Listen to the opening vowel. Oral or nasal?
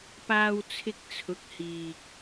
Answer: oral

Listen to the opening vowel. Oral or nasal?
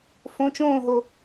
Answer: nasal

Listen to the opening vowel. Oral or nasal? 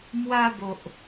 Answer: oral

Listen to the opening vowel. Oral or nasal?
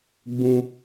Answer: nasal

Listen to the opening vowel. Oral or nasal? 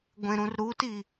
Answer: nasal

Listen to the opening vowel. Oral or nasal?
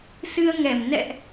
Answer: oral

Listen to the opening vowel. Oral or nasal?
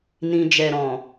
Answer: nasal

